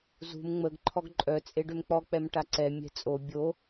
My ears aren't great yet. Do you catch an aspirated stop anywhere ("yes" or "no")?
yes